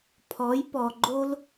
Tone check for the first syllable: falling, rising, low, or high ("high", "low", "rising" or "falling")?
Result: rising